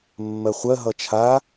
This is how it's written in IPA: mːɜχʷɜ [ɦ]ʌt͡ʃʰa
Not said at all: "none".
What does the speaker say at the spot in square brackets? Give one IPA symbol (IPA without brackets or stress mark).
ɦ